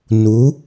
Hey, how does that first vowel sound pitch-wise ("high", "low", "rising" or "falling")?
rising